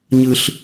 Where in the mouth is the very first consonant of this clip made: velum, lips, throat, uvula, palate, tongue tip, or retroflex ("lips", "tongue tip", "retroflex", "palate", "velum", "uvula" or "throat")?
palate